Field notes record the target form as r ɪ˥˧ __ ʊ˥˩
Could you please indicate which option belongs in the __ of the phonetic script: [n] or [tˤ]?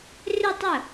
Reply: tˤ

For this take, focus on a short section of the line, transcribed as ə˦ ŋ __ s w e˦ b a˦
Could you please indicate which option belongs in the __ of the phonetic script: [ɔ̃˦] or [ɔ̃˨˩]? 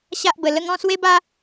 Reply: ɔ̃˦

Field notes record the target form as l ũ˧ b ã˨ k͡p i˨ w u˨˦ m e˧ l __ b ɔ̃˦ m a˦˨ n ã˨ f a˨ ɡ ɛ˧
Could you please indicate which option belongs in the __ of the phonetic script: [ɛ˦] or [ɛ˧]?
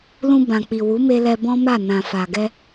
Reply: ɛ˧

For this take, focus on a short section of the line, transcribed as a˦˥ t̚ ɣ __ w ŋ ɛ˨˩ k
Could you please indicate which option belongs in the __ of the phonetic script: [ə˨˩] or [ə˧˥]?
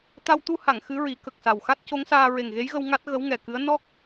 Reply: ə˧˥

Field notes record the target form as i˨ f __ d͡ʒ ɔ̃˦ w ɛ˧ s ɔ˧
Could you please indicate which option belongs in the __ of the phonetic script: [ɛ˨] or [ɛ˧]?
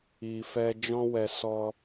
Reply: ɛ˧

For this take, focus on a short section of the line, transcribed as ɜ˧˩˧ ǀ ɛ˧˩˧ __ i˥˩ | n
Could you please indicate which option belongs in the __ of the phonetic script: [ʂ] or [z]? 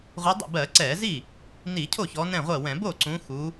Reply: z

